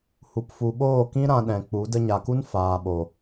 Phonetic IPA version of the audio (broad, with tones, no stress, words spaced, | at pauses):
hu˨pfu˨ɓoː˦˨kĩ˦ ɾã˧ɗɛ̃˨k͡pu˨˦ də˧ɲa˨ku˦n faː˨ɓo˨